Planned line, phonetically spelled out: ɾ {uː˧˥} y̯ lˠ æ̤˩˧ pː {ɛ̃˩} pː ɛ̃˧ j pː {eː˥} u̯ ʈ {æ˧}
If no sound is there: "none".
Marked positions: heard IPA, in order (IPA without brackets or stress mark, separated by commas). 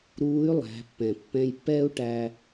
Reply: uː˧˥, ɛ̃˩, ɛː˥, æ˧